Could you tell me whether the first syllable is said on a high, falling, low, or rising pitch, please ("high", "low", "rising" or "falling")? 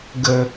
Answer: low